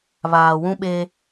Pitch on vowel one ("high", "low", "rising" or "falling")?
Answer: low